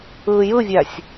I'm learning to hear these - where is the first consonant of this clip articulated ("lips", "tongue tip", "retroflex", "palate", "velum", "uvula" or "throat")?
palate